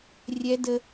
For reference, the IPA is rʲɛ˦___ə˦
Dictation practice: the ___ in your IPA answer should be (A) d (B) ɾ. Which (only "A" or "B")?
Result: A